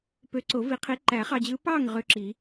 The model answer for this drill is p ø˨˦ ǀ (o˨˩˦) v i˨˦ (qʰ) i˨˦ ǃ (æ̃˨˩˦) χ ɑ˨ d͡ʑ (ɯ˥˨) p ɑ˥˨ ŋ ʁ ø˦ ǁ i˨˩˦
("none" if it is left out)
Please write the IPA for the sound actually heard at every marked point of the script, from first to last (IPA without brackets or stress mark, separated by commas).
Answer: o˨˩˦, qʰ, æ˨˩˦, ɯ˨˦